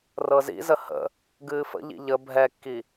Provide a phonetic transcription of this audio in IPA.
r ɤ z ḭ z ə h ə̰ | ɡ ɨː f ə̰ ʎ ḭ ʎ ə bʱ ɛ kː i

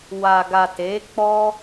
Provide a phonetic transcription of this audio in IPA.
w a˨ ɡ a˨ t e˨˦ k͡p ɔ˦

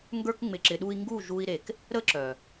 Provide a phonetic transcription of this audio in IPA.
ŋ ɡ ə˞˧ k ŋ͡m ɪ˨ ǁ ɪ˨ ɗ u˧ i̯ ŋ ɡ u˦˨ ʒ u˧ i̯ ɾ e˨ k | ɾ ə˦ ǁ œ˨

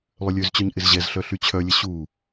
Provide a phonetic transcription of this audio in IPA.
lˠ ʏ lʲ ø z t͡ɕ œ ɲ ʔ ɪ z ʑ ɛ z ɬ œ ɬ y t͡ɕʰ œ lʲ ə ɕ u

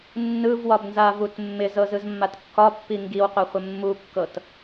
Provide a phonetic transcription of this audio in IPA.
nː ɯ v w ɒ b n z a v u t mː ɪ z ɤ z ɯ z mː a t kː ɒ pː i ŋ ɡ i w qʷ a χʷ ɪ mː u kː ɤ t

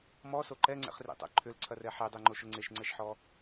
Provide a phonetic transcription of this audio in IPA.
m ɔ s o ǃ ɛ ŋ͡ǀ ɛ̰ χ r ḛ tˤ ɛ̰ ǃʰ ʏ l ǀʰ ɐ r ɛ ħ e dˤ e ŋ͡ǃ o ʃ ʊ ŋ͡ǀ e ʃ ŋ͡ǀ ɛ ʃ ħ ɔ

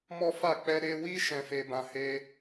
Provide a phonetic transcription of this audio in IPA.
m ɔ˦ f a˦˨ k͡p ɛ˧ ɾ e˧ w i˦ ʃ ɛ̃˧ f e˧ b ã˧ h e˦

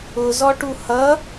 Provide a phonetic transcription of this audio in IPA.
ʊ z ɔ ʈ u h ʌ

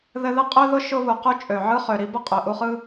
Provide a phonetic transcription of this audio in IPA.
ð ɘ˦ ð ɘ˥ qʼ ø˥ ð ʊ˥ ʃ ʊ˦ β u˨ q u˦ t͡ʃʼ ø˨ ʕ ɯ˦ χ ø˨ ɾ i˥ b ʊ˥ qʼ ø˨ ʔ u˦ χ ɯ˥

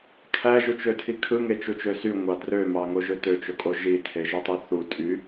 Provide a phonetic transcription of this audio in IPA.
kʰ æ ʒ u t͡ʃ ø tʰ i kʰ ɯ ŋ e t͡ʃ u t͡ʃ ø s y ŋʷ ɑ d r ø m ɑ ŋ o ʒ ø t ø t͡ʃ o kʼ o ʒ i tʰ e ʒ u tˤ y θ u tʼ y

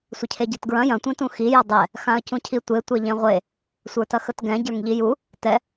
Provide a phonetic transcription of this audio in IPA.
sʷ ə cʰ e ɟ e t ɡ ɹ ɐ̃ j ɐ̃ tʷ ẽ t ũ x i j ɐ dˤ ɛ | x ã ə̯ c ũ cʰ i tʷ e tʷ ɛ ʎ ẽ ʁʷ e | sʷ ə˞ t ɐ x ə t ɡ ɛ̃ ɟ ə˞ ŋ ʎ i j u | t ɛ

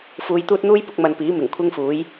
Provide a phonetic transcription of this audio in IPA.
f uː˧ j t̪ uː˥ t̚ n̪ uː˥ j p ʊ˧ k̚ m ɐ˨ n p iː˨˥ m ɪ˨˩ ŋ kʷʰ ɪ˥ ŋ f uː˨˥ j

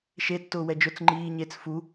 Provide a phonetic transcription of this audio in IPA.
ʃ e tː ʊː w ɛ d͡ʒ ʊ t͡s ŋ͡ǃ iː ɲ e t͡s f u

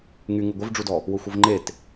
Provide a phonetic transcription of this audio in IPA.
ŋ y ŋ u ɡʷ ɘ v ɖ͡ʐ u d ɔ | w ʊ xʷ ɘ v ŋ͡ǃ e t

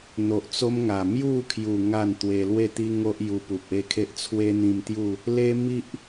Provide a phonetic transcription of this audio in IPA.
n̪ o˨ ʔ t͡s o˦ m ŋ a˨˩ m j u˥˧ kʰ j u˨˩ ŋ a˥˧ n t̪ w e˧ l w e˥˧ t̪ i˦ ŋ o˦ ʔ j u˧ p u˨ p̚ e˥˧ kʰ e˦ ʔ t͡sʰ w e˦ n̪ ĩ˧ m t̪ j u˥˧ | l e˧ m i˦ ʔ

